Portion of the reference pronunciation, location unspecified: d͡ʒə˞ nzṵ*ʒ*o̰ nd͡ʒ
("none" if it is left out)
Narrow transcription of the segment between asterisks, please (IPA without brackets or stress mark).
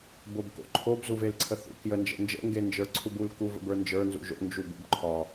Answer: ʒ